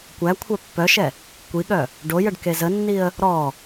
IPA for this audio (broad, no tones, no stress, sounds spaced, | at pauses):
kʷ æ kʷʰ œ pː œ ʃ ɛ | kʷ i ɠ œ | ɖ o j ə ɖ k e z ə nː i ə̯ | ɾ ɔ